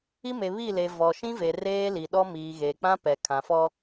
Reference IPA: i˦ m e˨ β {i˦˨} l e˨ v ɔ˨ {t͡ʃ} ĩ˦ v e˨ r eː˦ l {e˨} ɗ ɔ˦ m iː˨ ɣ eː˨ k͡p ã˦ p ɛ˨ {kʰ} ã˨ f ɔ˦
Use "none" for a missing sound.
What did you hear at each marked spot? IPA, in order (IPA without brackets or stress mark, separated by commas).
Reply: i˦˨, ʃ, i˨, kʰ